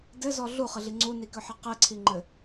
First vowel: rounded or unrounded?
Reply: unrounded